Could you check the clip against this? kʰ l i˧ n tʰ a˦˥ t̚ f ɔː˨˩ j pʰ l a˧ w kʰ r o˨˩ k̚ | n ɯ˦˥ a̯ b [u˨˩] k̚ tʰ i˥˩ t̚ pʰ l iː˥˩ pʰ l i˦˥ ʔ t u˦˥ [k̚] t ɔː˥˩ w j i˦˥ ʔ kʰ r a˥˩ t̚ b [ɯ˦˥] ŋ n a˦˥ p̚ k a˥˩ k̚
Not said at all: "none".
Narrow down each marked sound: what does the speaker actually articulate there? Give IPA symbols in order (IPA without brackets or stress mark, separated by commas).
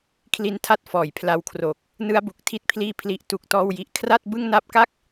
u˨˩, k̚, ɯ˥˩